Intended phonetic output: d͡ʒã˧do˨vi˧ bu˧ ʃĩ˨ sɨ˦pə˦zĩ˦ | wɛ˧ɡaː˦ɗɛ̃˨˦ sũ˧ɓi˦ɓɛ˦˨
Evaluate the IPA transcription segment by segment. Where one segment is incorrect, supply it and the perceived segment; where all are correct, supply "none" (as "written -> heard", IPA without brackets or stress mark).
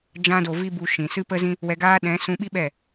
none